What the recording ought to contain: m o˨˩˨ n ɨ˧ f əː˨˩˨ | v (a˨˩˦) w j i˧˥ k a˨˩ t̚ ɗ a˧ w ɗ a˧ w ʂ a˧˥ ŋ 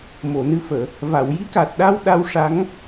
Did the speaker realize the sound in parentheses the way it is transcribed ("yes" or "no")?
no